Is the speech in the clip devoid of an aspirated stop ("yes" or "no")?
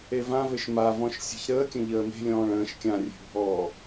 yes